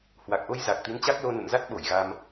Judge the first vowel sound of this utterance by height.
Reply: low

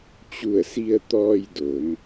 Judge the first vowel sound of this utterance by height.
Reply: high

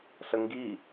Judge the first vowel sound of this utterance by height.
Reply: mid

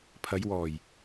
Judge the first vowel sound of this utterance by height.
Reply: low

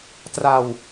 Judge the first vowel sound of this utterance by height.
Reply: low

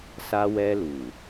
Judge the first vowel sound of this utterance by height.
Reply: low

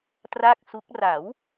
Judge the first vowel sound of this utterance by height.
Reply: low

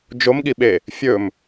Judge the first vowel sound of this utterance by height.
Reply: mid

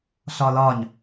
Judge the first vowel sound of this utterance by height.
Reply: low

